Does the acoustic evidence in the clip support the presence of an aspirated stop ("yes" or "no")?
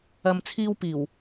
yes